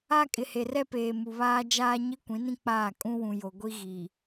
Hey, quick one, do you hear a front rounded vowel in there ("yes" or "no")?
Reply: no